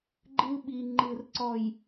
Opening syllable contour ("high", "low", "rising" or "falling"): high